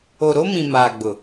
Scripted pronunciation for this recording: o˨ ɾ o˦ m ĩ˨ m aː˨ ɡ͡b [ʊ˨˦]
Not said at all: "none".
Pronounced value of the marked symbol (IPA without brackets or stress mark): ʊ˨